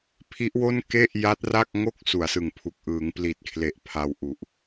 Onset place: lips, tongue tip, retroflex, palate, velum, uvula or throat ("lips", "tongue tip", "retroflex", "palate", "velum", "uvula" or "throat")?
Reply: lips